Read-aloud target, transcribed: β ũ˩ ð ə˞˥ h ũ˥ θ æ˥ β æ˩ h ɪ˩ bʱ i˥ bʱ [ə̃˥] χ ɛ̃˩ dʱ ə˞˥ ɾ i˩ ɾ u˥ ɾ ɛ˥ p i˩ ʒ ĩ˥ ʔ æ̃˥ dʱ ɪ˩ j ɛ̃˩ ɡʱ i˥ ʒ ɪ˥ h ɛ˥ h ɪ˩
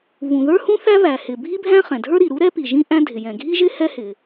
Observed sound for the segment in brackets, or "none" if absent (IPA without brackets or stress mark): æ̃˥